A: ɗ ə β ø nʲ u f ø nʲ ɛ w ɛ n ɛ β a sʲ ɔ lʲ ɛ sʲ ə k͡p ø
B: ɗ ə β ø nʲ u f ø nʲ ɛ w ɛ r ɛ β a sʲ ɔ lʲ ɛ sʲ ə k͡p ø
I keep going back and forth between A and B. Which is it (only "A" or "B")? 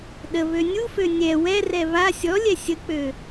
B